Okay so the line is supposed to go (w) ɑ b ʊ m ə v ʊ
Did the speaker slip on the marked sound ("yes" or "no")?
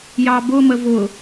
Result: yes